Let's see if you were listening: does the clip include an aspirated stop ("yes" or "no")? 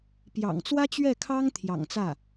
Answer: yes